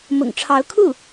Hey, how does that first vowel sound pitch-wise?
low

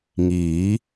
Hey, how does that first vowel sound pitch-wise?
rising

